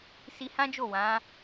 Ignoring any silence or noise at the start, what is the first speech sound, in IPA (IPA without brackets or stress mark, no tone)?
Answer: s